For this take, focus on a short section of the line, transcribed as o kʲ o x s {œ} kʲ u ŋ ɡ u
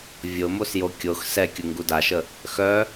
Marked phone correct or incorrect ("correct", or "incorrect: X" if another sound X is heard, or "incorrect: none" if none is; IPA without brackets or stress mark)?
incorrect: ɛ